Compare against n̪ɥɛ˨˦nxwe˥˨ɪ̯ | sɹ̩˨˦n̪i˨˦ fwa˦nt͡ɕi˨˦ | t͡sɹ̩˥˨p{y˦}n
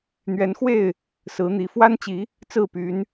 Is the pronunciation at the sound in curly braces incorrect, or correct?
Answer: incorrect: y˨˦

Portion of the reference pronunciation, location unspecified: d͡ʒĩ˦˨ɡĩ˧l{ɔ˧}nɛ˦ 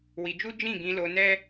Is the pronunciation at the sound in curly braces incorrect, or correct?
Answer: incorrect: o˧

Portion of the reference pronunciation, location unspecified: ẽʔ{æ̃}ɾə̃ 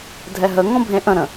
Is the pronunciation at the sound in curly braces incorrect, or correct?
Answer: incorrect: ə̃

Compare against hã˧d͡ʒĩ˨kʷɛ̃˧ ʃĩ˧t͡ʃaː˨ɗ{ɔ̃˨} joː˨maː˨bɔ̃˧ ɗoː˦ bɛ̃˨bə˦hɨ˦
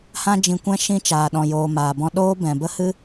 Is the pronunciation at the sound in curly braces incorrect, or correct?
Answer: correct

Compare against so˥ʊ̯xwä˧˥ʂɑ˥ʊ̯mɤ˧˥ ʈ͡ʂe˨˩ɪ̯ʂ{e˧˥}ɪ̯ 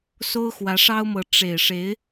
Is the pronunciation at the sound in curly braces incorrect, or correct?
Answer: correct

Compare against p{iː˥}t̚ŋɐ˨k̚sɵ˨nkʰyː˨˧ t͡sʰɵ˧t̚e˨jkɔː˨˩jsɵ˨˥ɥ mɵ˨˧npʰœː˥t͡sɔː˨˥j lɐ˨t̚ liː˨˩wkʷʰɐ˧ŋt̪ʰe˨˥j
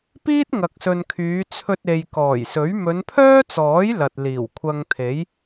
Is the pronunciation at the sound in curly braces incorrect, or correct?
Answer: correct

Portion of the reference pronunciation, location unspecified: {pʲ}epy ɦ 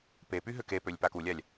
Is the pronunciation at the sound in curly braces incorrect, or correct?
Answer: incorrect: p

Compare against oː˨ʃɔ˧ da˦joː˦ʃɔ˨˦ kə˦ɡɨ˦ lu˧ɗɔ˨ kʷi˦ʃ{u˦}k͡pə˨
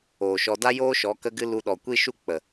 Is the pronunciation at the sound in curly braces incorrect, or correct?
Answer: correct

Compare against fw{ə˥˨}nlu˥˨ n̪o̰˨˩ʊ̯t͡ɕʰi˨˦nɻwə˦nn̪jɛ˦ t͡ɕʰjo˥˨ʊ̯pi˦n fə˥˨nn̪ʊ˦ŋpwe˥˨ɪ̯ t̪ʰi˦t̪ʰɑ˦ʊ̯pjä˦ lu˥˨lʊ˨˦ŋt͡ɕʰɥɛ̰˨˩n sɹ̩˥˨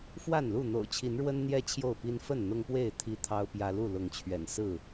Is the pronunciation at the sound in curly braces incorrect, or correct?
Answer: incorrect: a˥˨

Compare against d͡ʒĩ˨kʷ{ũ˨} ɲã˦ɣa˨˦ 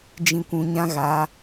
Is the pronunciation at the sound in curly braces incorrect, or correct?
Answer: correct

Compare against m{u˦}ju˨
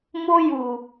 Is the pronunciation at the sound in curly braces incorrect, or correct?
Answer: incorrect: o˦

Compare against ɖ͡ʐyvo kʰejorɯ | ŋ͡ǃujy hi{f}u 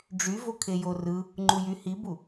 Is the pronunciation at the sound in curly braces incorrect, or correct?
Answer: incorrect: b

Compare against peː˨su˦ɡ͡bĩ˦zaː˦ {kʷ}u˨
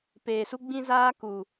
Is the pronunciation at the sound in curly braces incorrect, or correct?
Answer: incorrect: k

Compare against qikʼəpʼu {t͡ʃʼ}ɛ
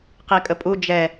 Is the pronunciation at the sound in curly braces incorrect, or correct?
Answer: incorrect: d͡ʒ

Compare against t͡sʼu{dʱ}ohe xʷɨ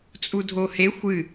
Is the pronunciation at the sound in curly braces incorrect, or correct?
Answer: correct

